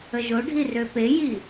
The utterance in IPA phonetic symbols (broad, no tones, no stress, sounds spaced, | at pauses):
ə ʒ o ɖʱ i r ø p e j i